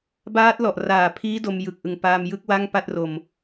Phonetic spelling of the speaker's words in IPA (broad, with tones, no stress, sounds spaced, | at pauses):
b aː˦˥ t̚ l ɔ˨˩ ʔ r aː˨˩ pʰ iː˦˥ d o˧ m j ɯ˨˩ k̚ ʔ ɯ˨˩ ŋ p aː˧ m j ɯ˦˥ k̚ w a˥˩ ŋ p a˥˩ t̚ r o˧ m